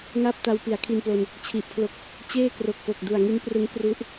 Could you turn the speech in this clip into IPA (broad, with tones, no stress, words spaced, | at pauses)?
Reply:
ŋa˥˩p̚ta˧w pi˩˦a̯kʰi˧nplo˧n | t͡ɕʰi˨˩ʔpʰlo˥˩k̚ | t͡ɕeː˥˩ kro˨˩k̚po˨˩k̚ du˨˩a̯ŋi˦˥n prɯ˦˥ŋ kru˦˥ʔ